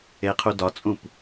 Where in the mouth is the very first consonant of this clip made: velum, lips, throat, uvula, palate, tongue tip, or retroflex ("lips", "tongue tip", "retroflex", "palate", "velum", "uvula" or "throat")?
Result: uvula